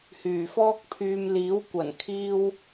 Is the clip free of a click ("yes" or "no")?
yes